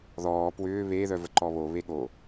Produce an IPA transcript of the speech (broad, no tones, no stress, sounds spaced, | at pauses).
ð ɔː p w ʏː β e ð œ v ə ǃ ɔ β o β e ɠ o